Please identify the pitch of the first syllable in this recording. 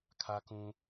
high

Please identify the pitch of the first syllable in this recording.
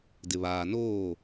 low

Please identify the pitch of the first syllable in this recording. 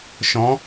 rising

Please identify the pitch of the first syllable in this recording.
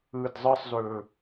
low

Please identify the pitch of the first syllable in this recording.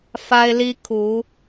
high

